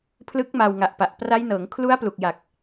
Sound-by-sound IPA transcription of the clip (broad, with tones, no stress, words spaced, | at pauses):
pʰlɯ˦˥k̚ma˧w ŋa˨˩ʔpa˨˩ʔ pra˦˥jnɤː˩˦ŋ kʰlu˦˥a̯plu˨˩k̚ja˨˩k̚